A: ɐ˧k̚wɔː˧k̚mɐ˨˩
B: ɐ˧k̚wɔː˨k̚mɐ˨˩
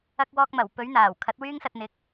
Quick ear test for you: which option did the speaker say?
A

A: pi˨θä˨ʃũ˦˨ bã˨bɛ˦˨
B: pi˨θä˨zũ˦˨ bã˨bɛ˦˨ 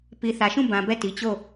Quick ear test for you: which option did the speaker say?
A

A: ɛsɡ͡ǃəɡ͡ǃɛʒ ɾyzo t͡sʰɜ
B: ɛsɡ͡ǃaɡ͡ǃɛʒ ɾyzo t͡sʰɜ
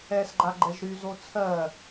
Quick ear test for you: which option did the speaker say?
B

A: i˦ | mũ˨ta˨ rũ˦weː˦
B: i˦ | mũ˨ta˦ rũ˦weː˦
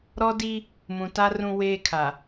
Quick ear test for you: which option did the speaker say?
B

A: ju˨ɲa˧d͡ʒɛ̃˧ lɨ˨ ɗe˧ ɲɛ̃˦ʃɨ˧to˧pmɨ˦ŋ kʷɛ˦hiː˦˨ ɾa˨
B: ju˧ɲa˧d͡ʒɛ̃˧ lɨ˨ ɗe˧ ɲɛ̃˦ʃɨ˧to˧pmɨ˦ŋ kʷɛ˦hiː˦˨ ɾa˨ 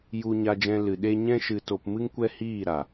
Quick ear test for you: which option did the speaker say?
B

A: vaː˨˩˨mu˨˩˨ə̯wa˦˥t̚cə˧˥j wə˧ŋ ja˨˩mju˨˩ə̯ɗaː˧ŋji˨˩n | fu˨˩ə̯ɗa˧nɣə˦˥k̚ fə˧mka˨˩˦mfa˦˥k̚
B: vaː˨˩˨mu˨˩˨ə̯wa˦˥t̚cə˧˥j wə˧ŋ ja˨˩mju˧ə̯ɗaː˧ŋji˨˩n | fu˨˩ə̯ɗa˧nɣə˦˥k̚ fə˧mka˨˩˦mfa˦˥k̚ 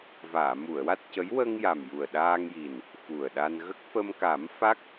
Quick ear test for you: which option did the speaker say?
A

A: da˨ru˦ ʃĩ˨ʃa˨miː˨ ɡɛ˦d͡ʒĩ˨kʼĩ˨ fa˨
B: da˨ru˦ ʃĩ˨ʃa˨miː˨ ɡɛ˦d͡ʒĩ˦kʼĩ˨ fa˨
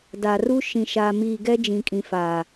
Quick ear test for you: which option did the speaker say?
A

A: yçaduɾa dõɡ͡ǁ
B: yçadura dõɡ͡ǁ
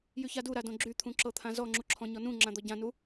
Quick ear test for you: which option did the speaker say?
A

